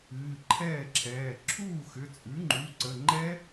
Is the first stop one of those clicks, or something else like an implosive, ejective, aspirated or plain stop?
click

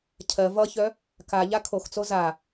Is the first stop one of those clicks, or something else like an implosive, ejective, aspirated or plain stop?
aspirated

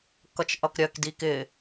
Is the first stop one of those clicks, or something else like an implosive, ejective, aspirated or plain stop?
plain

